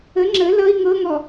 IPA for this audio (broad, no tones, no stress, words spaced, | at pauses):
ə ŋ͡ǁə lʌi̯ ŋɤŋɔ